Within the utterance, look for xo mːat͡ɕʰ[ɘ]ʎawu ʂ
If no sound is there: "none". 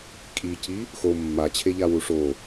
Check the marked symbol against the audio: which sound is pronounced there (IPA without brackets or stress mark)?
e